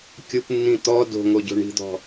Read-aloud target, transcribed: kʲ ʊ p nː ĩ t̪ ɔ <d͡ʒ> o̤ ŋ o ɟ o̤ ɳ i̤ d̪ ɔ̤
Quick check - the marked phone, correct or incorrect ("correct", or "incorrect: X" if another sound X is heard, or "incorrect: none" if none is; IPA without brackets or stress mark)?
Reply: incorrect: d